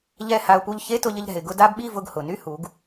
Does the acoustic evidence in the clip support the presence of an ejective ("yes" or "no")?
no